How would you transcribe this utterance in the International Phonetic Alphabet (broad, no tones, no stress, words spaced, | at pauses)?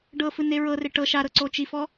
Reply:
ɖɤfɯ neɹɤre ʈɤ ʃaɾɤ ǀot͡ʃifɔ